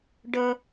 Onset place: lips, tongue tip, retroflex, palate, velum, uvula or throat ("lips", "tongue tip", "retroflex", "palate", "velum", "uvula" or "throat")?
retroflex